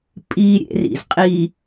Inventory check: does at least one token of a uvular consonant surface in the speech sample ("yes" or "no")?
yes